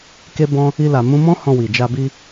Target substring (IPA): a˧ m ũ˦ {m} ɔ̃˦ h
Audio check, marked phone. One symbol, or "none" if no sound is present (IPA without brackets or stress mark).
m